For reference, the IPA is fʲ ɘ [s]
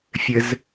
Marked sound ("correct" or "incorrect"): incorrect